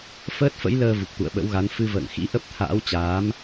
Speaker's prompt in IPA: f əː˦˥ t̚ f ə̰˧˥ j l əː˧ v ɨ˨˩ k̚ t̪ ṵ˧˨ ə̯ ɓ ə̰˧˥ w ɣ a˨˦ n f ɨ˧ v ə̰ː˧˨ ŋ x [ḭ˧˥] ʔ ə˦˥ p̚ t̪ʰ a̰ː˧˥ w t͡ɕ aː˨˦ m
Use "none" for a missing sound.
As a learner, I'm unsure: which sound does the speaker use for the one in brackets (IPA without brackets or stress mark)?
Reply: ḭ˧˥